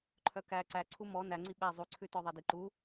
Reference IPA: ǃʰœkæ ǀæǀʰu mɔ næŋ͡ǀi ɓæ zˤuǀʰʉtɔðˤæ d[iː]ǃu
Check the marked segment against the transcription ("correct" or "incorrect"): incorrect